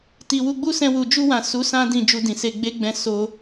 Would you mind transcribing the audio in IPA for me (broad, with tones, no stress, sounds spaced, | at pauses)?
t i˨ w u˧ ɡ͡b u˦ s ɛ̃˧ w u˨ d͡ʒ u˧ w ã˨ s u˨˦ s ã˦ d ĩ˧ d͡ʒ u˧ d ĩ˨ s e˧ ɡ͡b e˦ ɡ͡b ɛ̃˧ s o˧